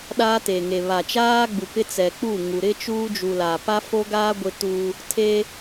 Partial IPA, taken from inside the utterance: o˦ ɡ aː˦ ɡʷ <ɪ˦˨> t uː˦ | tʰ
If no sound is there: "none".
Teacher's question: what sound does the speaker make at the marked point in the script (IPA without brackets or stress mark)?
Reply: ɪ˦